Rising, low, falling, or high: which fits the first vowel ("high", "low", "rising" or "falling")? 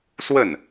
falling